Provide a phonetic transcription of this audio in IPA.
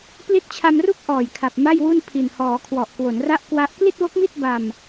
p l i˦˥ t̚ t͡ɕʰ a˧ m r u˥˩ k̚ ʔ ɔː˨˩ j kʰ a˨˩ p̚ m a˥˩ j w u˥˩ n pʰ i˨˩ n h ɔː˩˦ kʰ w ɔ˨˩ ʔ k w o˩˦ n r a˦˥ ʔ k w a˦˥ ʔ k l i˥˩ t̚ w o˦˥ k̚ m i˥˩ t̚ b a˧ m

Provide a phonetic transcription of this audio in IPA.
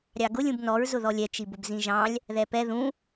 ɾʲ ɑ ɡ ʊ lʲ ũ b n ɔ ɹ z ʊ ð ɔ lʲ ɛ t͡ʃ i b ʊ b z ĩ ʒ ɑ̃ lʲ | ð ɛ p ɛ ð ũ

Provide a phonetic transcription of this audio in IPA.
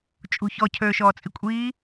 t͡ʃʼ ṳ ç ɔ cʰ øː ʃ ɔː t͡sʼ i kʷʼ iː

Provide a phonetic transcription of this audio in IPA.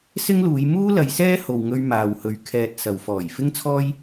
s ɪ˥ ŋ l uː˨˧ j m uː˥ l ɐ˨˧ j s ɛː˥ h o˨ w ŋ ɵ˧ ɥ m aː˨ w h ɵ˨ ɥ kʰ ɛː˨ t̚ s ɐ˨ w f ɔː˨˩ j f ɪ˥ ŋ t͡sʰ ɔː˥ j

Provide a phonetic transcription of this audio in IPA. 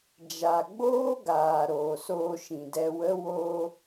d͡ʒ a˨ ɡ͡b oː˦ ɡ aː˨ ɾ oː˨ s oː˧ ʃ ĩ˨ d ɛ˧ w ə˦ w o˧

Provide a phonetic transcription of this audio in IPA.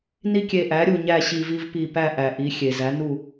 n i˦ kʲ e˧˩ ʔ æ˩˥ ɾʲ u˧˩ ɲ æ˥˨ ɕ i˧˩ v i˦ v p i˧˩ p æ˥˨ ʔ æ˩ ʔ i˩˥ xʲ e˩ z æ˩˥ n u˥˨

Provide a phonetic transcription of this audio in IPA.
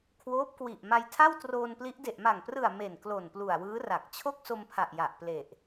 kʰ w oː˦˥ p̚ k w i˨˩ ʔ m a˧ j tʰ a˥˩ w t r oː˧ n p l i˦˥ ʔ d e˨˩ ʔ m a˨˩ ŋ p r ɯ˨˩ a̯ m e˨˩ n k l o˨˩ n p l u˨˩ a̯ w ɯː˦˥ r a˨˩ k̚ t͡ɕʰ o˥˩ k̚ s o˧ m pʰ a˨˩ ʔ j a˨˩ ʔ p l e˨˩ ʔ

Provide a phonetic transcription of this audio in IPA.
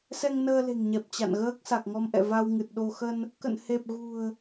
s ɛ˧ ŋ n əː˧ l e̤˨˩ ŋ ɲ ɛ˨˩ p̚ t͡ɕ a̰˧˨ n ɣ əː˦˥ k̚ s a˨˩ k̚ ŋ ɔ˧ m ʔ ɛ̰˧˨ v a˧ w ŋ ɨ˨˩ t̚ ɗ o˧ x ə˧ n | k ə̰˧˨ n h e˨˩ p̚ ɣ ṳ˨˩ ə̯

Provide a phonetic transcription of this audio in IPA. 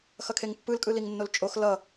x ʌ kʰ e ŋ pː ɯ l kʼ ɯ l i ŋ nː o l t͡ʃʼ o x l ʌ

